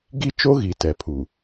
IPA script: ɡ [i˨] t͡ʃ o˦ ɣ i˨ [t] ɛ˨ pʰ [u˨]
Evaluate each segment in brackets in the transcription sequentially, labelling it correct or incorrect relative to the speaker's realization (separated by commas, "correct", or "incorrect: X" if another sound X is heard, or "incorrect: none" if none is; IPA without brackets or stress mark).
incorrect: i˦, correct, correct